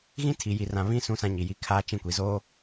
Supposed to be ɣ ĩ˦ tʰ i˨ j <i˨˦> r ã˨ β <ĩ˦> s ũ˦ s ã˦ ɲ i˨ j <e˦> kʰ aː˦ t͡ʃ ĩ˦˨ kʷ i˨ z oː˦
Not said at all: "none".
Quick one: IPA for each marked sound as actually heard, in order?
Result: i˨, ĩ˦, i˦

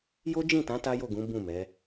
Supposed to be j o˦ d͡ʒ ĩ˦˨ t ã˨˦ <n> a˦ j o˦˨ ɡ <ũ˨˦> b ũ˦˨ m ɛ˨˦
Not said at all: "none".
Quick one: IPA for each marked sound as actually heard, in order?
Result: t, ũ˨˦

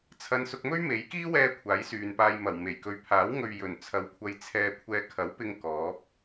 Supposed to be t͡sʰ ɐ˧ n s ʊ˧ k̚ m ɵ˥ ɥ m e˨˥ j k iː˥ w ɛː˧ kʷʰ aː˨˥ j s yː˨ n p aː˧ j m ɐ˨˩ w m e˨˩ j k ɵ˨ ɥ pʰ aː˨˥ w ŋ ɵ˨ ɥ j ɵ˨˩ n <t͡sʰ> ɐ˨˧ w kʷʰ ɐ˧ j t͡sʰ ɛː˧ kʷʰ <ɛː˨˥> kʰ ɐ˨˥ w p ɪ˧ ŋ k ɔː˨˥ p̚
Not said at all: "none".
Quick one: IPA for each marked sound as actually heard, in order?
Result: t͡sʰ, ɛː˧

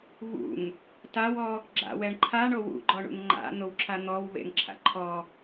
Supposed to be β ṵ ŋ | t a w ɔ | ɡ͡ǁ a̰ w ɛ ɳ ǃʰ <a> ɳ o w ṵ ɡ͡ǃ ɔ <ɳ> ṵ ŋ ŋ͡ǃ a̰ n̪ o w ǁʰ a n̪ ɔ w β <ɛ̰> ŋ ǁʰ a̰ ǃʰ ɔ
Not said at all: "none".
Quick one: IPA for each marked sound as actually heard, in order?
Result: a, ɳ, ḛ

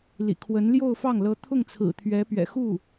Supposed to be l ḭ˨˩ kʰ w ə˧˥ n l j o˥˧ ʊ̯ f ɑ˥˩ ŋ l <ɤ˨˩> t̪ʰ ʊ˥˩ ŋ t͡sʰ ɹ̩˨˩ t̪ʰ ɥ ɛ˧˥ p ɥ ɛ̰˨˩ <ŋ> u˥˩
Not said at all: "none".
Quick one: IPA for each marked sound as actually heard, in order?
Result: ɤ˧˥, x

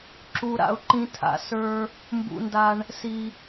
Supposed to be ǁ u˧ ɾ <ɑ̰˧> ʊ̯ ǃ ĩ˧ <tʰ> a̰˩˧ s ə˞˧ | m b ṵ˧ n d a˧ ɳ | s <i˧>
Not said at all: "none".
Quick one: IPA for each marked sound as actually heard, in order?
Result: a̰˧, tʰ, i˧

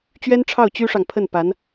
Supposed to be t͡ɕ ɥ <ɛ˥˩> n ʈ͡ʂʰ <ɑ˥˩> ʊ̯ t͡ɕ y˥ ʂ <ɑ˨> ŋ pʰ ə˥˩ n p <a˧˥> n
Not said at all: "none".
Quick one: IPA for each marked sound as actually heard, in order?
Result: ɛ˥, ɑ˥˩, ɑ˨, a˧˥

